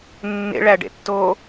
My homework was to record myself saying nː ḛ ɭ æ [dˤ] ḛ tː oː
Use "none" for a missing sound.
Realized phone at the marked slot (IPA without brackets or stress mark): ɖ